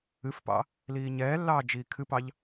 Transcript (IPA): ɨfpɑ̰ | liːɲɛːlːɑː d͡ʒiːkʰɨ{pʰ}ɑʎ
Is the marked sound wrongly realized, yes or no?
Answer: yes